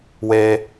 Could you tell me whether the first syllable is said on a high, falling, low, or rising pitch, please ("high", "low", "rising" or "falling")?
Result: high